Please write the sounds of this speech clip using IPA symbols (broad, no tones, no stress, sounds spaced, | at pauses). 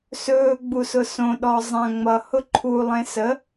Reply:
s ɵː ɡ͡b u s ʊ s õ ɗ ɔ zˤ ã ŋ͡m ʌ h ʊ ǃʰ u lˠ ẽ s ə